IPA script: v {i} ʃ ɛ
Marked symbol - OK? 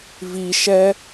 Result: yes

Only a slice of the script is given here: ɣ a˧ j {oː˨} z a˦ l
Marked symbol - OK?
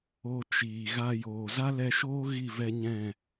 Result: yes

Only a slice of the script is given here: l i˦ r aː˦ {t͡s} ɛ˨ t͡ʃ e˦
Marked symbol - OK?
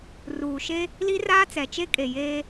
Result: yes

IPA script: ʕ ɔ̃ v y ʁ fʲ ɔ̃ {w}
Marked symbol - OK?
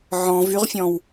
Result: yes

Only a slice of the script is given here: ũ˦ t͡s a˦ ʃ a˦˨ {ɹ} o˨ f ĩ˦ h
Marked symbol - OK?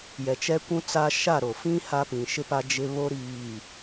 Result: no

